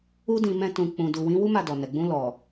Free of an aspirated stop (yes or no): yes